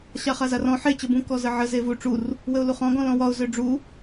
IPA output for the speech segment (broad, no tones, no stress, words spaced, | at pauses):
ɕaχazarɔ̃ ħe t͡ɕəbũ kɔzəʕə zevu ʈ͡ʂur | wəʊ̯luχɔ̃ ɡɔ̃lɔ̃wɒʊ̯ zøɖ͡ʐu